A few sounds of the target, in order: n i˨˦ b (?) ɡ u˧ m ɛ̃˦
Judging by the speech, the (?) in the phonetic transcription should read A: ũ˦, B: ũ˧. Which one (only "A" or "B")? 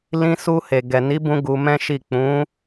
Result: B